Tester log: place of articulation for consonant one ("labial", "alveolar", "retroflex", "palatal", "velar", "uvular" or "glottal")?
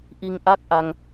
glottal